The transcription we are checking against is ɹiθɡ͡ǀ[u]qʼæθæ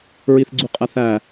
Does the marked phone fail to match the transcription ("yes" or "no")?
no